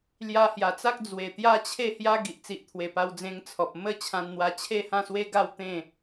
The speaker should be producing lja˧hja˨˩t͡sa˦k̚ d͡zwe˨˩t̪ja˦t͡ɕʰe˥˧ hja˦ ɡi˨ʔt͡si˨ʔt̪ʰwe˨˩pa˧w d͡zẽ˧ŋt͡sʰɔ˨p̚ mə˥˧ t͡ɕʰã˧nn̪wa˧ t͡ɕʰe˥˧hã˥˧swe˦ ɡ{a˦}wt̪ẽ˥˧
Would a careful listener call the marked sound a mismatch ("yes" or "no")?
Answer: yes